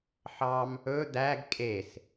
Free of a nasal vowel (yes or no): yes